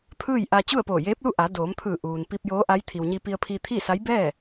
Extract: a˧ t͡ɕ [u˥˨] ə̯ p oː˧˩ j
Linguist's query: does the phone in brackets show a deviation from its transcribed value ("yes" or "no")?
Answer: no